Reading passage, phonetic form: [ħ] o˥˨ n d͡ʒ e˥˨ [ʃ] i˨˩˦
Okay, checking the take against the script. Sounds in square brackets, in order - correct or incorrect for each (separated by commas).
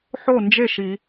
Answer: correct, correct